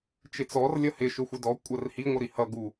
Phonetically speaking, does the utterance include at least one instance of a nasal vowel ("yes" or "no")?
no